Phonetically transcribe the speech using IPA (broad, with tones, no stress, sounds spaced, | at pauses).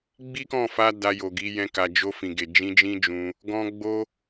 ɡ͡b i˦ k ɔ̃˦˨ f a˧ d a˧ j o˨ ɡ i˨˦ j ɛ̃˧ k a˨ d͡ʒ o˧ f ĩ˨ ɡ e˨ d͡ʒ ĩ˧ d͡ʒ ĩ˦ d͡ʒ ũ˧ | ɡ ɔ̃˧ ɡ͡b o˦